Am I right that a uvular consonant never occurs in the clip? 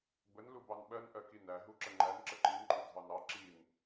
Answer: yes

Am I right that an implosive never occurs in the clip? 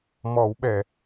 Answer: no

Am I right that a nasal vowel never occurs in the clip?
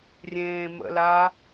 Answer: no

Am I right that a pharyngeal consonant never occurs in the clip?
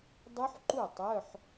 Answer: no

